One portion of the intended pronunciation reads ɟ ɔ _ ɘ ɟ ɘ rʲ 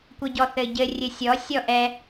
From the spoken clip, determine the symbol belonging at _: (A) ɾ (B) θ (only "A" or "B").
B